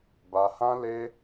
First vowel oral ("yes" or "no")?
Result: yes